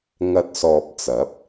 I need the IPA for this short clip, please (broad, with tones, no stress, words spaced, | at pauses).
ŋɐ˧t̚sɔː˨p̚t͡sɐ˨˥p̚